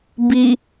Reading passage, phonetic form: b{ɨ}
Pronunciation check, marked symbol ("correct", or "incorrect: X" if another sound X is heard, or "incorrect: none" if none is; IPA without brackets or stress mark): incorrect: i